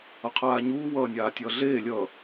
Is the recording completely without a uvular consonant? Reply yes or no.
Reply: no